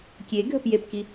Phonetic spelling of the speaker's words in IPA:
kʲ e ɡʱ ə p j e p k i

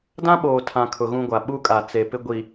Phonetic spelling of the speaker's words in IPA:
d ã˦ ɓ oː˨ tʰ ã˨ kʰ ʊ˨ ɣ ũ˦ ɡʷ a˨ ɓ u˦ kʼ a˨ t͡s e˨ p ɪ˦ ɡʷ i˨

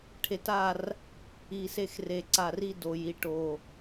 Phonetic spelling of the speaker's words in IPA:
ʈʰ e˧ t a˥˨ r | i˧˩ s e˥˨ x r e˧˩ ǀ a˧˩ r i˥˨ d o˧˩ j i˥˨ ʈ o˧˩

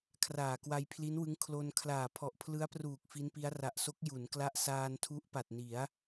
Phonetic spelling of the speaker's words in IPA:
kʰ r aː˨˩ k w a˧ j pʰ l i˦˥ n w ɯ˦˥ ŋ kʰ l o˧ n kʰ l aː˨˩ pʰ ɔ˨˩ ʔ pʰ l ɯ˦˥ a̯ p r uː˨˩ k̚ f i˦˥ n p i˦˥ a̯ r a˨˩ ʔ s o˦˥ k̚ j u˩˦ n k l a˦˥ ʔ s aː˧ n tʰ u˦˥ ʔ p a˨˩ t̚ n i˩˦ a̯

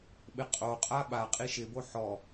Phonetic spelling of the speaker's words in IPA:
ɓ ɪ qʼ o qʼ a ɓ a qʼ i ʃ ɪ b o ħ ɔ

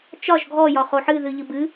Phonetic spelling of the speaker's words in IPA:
t͡ʃ ɒ ʒ ɡʱ ɔ j ɒ χ o ħ ɨ ð ɨ ʎ ɨ b ɨ

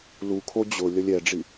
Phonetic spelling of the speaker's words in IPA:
l u kʰ o d͡ʑ ʊ lʲ ʌ lʲ ɛ ɖ͡ʐ i

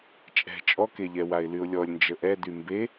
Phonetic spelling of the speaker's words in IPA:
t͡ʃʼ ɛ̤ t͡ʃʼ ɔ k e ʎ ɛ w a ɪ̯ l y ʊ̯ lʲ ɔ lʲ n d͡ʒ ə ʔ ɛ d y m b e

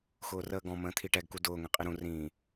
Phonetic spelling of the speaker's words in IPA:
x ʊː r əː ɡ ɔ̃ m ə̃ː t̪ʰ i ʈ ɛ ɡ k u d ʊː ŋ ɛ̃ qʼ i ɾ ũ r ĩː

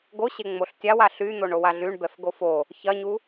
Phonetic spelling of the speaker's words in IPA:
ɡ o ɕ e ŋ͡m o ɬ tʲ a w a ɬ y n̪ o ɳ o w a ɮ y ɳ b ɛ f ɡ o f o | ç ɐ ɲ u

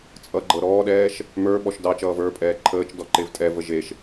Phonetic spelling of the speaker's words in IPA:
t͡sʼ ʌ ɡ͡ǃ ɤ ɾ ɔː ɗ ɛː ʃ | m ə˞ ɓ ɔ ʃ d ɑ t͡ʃ ʌː v ə˞ pʼ ɛː ǃʰ əː t͡ʃ d ɔ ǃ e v tʼ ɛ v ə ʒ e ʃ

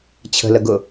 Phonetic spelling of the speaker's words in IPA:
t͡ɕʰ ə̤ l ə ɡ ʊ

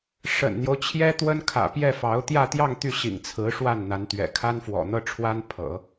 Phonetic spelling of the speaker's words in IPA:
ʂ ə̰˨˩ n n̪ j o˦ ʊ̯ t͡ɕʰ j ɛ˥ t̪ w ə˥ n kʰ ä̰˨˩ p j ɛ˥˩ f ɑ˧˥ ʊ̯ t̪ j ä˥˧ t̪ j ɑ˥˧ ŋ t̪ y˥˩ ɕ ḭ˨˩ ŋ t͡sʰ ɹ̩˧˥ ʂ w a˥˩ n n̪ a˧˥ n t̪ ɥ ɛ̰˨˩ kʰ a˥ n f w ɔ̰˨˩ n̪ ɤ˥ ʈ͡ʂʰ w a˥ n pʰ ɤ̰˨˩˦

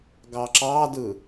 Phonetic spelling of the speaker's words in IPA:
ɡ ɑ ǁ ɑ d ɯ

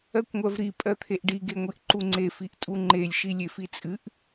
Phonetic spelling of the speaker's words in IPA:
ɜ kʷ ŋʷ ɜ v ɾ i pʼ ɜ t̪ʰ e ʔ ɖ i ɡ e ŋʷ i ʔ ǃ u ŋ͡ǀ e f i ʔ tʼ u ŋ͡ǃ e lʲ ʃ i lʲ e f i t͡sʼ ɨ ʔ

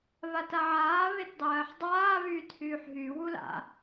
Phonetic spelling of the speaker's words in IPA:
β a t a ʕ aː β e t dˤ ɜː ħ dˤ aː β yː t h yː ħ ɦ y w u l a̰

